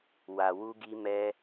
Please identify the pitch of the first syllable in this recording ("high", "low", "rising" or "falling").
low